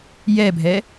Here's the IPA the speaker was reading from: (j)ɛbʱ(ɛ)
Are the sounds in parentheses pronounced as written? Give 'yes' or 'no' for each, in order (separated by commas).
yes, yes